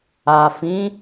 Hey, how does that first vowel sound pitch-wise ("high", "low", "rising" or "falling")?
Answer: low